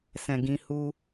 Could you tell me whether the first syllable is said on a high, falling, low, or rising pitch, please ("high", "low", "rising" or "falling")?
low